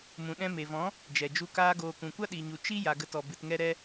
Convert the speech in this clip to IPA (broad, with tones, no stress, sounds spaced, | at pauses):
m ũ˨ ɗ ɛ̃˧ m e˨ v ɔ̃˨˦ | d͡ʒ ɛ˨ d͡ʒ u˧ k aː˦ ɡ oː˧ k ũ˨ kʷ a˦ ɗ iː˨ ɲ u˨ t͡ʃ i˦ j a˨ ɡ ə˧ t ɔ˨ b ɨ˨ t ŋ ɛ˧ ɾ ɛ˧